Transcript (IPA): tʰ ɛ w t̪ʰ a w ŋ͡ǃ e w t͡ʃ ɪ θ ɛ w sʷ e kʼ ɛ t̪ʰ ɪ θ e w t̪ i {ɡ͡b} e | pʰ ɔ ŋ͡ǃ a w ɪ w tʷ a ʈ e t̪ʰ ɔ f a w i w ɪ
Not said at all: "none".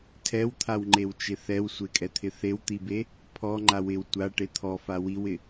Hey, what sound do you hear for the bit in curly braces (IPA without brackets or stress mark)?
b